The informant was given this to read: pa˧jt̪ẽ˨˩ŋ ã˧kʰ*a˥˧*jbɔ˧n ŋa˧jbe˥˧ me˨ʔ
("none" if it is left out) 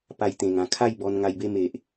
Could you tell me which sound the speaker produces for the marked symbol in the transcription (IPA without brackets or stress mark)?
a˥˧